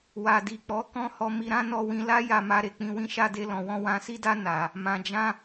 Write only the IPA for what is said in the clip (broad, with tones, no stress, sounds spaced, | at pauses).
w a˨ d i˨ k͡p ɔ˨˦ k ɔ̃˦ h ɔ˧ m i˧ ɾ ã˦ n ɔ˧ w ĩ˧ l a˦ j a˧ m a˧ ɾ e˨ k͡p ĩ˧ w ĩ˦ ʃ a˦ d e˦ l ɔ̃˧ w ɔ̃˦ w ã˧ s i˦ d a˦ n a˧ | m ã˨ d͡ʒ ã˧